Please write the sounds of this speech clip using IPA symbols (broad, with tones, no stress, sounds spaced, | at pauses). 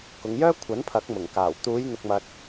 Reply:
k ʊ˨˧ ŋ j œː˥ kʷʰ ɐ˨˥ n pʰ ɐ˨˥ k̚ m ʊ˨˩ ŋ k aː˨˩ w t̪ uː˨˧ j n̪ ʊ˨ k̚ m ɐ˨ t̚